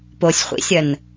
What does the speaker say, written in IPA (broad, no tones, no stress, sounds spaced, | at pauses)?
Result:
p o sʲ χʷ ḭ sʲ ɐ n